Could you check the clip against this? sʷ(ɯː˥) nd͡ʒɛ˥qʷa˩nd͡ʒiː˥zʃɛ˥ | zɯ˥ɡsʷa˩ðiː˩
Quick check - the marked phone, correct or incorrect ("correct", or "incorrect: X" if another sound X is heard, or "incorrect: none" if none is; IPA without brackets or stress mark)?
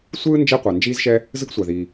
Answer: correct